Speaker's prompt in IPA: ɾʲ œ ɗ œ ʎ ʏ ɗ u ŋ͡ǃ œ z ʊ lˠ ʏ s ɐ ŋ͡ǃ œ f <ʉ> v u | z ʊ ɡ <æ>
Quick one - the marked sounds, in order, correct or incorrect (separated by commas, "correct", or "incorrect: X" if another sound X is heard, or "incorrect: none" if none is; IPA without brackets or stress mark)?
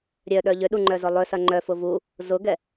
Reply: incorrect: ʊ, incorrect: ɛ